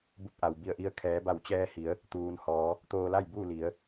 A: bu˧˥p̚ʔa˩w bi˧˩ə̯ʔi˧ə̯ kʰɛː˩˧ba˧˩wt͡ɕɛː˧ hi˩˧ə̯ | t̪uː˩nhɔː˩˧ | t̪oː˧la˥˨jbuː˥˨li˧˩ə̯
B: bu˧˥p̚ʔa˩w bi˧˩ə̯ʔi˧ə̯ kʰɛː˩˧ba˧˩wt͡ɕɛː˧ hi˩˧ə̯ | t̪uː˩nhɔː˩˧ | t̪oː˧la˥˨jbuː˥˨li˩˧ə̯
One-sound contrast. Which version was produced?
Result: B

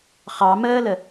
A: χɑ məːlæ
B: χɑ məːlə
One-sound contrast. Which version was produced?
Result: B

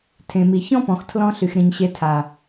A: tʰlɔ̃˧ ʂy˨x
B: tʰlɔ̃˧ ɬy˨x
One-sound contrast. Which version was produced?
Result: B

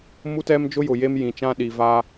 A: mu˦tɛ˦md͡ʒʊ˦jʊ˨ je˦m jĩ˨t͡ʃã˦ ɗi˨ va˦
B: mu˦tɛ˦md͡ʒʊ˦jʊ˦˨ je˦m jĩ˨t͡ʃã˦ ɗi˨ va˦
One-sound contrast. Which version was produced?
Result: A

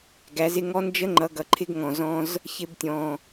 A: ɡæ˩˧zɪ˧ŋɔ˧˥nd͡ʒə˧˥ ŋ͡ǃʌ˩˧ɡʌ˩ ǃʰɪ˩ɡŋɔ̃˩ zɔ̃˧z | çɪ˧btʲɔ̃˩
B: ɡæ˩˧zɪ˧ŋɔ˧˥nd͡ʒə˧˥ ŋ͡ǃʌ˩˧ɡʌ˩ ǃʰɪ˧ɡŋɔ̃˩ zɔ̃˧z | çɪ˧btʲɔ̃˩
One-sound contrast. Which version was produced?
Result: B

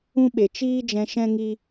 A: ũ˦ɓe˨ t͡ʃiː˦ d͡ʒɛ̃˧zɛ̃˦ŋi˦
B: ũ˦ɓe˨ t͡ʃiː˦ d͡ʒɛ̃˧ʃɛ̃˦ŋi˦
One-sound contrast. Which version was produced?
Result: B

